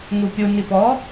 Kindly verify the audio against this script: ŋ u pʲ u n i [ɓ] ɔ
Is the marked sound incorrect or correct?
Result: incorrect